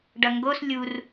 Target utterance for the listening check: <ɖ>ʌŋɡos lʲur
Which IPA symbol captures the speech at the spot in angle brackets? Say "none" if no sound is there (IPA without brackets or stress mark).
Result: ɖ